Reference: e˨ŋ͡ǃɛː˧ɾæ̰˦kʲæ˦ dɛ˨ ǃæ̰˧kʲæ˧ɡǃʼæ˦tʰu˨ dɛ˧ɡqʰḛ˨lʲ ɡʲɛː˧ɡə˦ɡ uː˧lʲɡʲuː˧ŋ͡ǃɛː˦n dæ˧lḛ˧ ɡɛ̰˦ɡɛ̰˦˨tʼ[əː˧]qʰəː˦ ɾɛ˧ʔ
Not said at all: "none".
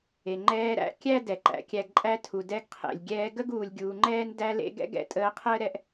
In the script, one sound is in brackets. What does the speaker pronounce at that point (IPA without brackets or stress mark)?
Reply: əː˧